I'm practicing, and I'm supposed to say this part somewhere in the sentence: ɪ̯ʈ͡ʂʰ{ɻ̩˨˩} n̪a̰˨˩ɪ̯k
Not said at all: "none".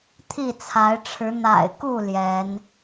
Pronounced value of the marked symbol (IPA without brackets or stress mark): ɻ̩˨˦